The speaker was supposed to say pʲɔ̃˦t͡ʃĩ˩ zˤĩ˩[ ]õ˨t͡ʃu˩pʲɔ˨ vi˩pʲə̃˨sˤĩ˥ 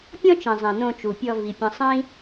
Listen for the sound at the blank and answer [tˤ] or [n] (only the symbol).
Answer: n